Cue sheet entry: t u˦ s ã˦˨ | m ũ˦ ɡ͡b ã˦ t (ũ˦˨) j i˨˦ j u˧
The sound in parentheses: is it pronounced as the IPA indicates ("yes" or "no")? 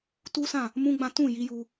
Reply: yes